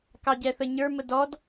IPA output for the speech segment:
k ɑ ɟ ɛ θ ə ɲ ə˞ m ə d ɔ d

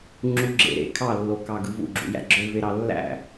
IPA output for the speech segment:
ŋ͡ǁ u ɡ͡ǁ ḛ ɾ ḛ kʰ ɑ lː o k ɑ ɡ ɯ v ṵ ɡ͡ǁ ṵ j æ̰ ɡ͡ǁ ø v e ɾ ɑ lː æ̰

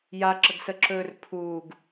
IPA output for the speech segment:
j a ǁ ə ɡ s ə ǁ ɵː r pʰ uː ɡ

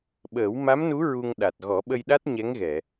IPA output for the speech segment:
ɓ əː˨˩˦ w m a˧˥ m n u˧˥ ɹ u˧ ŋ ɗ a˨˩ t̚ ɣ ɔ˨˩˦ ɓ ə˧ j ɗ a˦˥ t̚ ɲ ɛ˧˥ ŋ ɣ ɛ˨˩˨

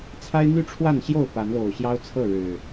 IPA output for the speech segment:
t͡sʰ a˦ ɪ̯ n̪ y˥˨ ʈ͡ʂʰ w a˥˨ n ɕ j o˥˨ ʊ̯ p a˨˦ n l o˨˩ ʊ̯ ɕ j ɑ˦ ʊ̯ t͡sʰ ɤ˥˨ ɻ ɻ̩˨˩

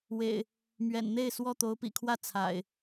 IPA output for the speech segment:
w ḛ˨˩ ɪ̯ | m ɥ ɛ̰˨˩ n n̪ e˥˨ ɪ̯ s w ɔ˥˨ t̪ o˨˦ ʊ̯ p ḭ˨˩ kʰ w ä˥˨ t͡sʰ a̰˨˩ ɪ̯

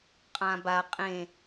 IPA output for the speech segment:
qʼ ã b a qʼ ẽ

